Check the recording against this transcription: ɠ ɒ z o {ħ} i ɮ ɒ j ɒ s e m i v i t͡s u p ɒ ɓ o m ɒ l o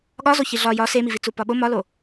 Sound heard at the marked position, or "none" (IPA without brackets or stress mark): ç